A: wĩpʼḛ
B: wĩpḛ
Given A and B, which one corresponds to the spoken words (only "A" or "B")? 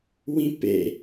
B